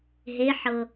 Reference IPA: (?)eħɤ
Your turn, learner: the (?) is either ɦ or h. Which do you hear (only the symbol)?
ɦ